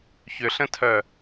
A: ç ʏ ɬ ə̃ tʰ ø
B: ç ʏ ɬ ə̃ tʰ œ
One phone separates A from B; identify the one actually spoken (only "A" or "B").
B